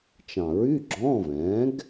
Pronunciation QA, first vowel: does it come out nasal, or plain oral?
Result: nasal